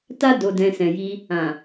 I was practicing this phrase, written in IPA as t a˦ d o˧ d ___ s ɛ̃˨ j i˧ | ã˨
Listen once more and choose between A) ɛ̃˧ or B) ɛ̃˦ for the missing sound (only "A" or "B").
A